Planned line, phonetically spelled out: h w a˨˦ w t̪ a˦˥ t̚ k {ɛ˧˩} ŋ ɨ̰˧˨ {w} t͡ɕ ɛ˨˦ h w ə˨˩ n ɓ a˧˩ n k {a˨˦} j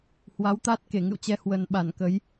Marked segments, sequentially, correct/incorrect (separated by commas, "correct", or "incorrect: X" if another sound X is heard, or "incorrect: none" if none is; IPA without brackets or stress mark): incorrect: e˧˩, correct, incorrect: ə˨˦